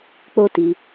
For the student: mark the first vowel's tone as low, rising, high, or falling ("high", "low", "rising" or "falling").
high